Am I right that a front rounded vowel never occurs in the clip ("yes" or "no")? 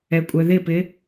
no